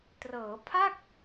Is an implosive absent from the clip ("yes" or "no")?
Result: yes